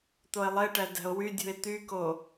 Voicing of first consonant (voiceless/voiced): voiceless